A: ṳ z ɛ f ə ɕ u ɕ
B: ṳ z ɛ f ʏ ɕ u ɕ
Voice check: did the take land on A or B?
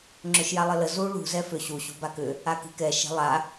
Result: B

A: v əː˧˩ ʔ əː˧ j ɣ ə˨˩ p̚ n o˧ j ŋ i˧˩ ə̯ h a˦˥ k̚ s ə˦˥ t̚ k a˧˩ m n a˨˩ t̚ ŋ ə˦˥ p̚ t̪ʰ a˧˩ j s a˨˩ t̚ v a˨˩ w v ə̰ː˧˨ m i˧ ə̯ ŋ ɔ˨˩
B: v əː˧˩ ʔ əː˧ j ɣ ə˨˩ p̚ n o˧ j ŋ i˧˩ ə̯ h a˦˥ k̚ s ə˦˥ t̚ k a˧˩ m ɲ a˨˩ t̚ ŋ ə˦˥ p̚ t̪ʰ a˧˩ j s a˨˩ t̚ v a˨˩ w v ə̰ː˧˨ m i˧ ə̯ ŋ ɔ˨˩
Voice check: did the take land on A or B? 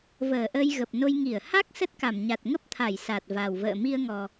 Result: B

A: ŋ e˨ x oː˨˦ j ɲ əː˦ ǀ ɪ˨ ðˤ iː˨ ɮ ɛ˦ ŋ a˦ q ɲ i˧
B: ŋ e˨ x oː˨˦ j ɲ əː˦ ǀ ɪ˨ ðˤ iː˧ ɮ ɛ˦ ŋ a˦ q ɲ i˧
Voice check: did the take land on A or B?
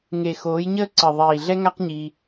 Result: A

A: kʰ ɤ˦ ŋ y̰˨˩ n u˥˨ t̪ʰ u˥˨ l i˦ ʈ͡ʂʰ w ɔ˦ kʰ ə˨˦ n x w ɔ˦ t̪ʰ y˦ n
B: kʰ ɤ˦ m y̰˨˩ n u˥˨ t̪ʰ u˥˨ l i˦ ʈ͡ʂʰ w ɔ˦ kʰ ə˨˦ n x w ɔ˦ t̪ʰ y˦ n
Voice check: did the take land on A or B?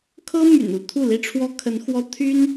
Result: B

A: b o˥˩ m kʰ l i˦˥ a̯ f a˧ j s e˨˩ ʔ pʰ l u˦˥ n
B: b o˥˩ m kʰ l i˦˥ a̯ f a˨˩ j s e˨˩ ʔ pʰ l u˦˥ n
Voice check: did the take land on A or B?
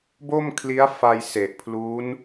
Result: A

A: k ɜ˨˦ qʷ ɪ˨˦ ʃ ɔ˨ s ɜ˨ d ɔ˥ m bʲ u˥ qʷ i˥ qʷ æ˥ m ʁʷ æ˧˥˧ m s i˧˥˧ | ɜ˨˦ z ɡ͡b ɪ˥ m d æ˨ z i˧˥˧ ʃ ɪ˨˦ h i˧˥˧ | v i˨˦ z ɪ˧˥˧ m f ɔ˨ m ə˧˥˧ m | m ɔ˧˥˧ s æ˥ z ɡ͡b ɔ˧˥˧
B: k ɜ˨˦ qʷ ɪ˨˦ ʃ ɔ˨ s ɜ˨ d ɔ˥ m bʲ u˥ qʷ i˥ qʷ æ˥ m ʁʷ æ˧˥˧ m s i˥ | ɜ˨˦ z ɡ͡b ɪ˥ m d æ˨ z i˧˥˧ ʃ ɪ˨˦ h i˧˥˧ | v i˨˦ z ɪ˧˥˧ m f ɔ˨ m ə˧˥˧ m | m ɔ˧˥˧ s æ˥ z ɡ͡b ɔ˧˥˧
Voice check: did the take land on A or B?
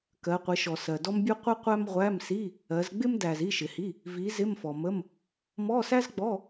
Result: A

